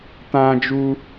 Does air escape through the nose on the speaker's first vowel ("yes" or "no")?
yes